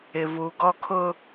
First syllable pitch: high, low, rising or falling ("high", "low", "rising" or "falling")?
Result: low